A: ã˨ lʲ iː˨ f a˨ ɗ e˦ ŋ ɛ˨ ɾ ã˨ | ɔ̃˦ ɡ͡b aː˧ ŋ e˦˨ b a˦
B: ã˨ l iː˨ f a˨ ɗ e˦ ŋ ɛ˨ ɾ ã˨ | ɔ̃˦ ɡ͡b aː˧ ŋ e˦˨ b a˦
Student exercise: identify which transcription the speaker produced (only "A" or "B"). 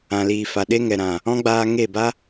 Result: B